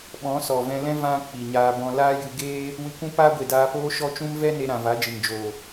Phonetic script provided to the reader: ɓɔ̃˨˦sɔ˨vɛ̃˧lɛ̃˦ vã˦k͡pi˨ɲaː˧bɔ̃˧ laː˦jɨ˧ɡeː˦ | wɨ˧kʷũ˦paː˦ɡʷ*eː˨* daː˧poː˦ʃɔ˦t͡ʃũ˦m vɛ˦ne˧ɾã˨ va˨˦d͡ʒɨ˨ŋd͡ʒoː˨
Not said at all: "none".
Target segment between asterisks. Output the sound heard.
e˨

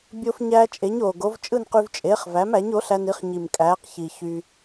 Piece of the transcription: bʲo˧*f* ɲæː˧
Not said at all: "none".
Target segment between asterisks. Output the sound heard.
f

